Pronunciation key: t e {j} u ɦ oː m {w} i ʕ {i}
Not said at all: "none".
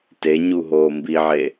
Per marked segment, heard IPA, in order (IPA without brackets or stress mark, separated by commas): ɲ, b, e